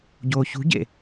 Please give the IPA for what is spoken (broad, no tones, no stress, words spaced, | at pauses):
ɟoːçṳɟḛ